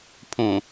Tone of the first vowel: low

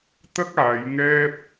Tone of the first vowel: high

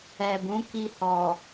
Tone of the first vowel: low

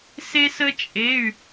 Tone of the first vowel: high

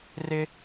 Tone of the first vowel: high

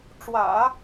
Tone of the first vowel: low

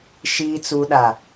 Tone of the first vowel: low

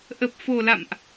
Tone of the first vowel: low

